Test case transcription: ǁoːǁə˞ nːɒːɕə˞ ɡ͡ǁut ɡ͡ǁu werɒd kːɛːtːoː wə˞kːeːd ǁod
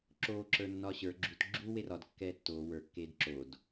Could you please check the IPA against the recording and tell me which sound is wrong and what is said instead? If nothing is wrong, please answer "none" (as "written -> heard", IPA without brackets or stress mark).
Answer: none